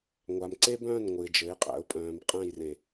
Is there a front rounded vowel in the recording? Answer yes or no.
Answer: yes